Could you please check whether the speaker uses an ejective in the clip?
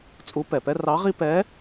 yes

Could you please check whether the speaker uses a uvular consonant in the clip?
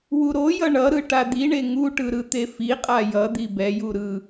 yes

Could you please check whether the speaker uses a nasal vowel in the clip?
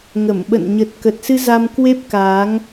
no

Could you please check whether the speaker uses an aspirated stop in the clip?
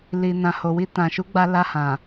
no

